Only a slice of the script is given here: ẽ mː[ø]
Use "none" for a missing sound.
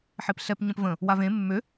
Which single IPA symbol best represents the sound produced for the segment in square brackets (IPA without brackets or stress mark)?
ø